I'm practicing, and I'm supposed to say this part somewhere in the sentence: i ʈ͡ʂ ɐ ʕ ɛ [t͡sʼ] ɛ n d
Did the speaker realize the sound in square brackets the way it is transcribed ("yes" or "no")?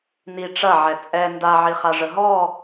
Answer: yes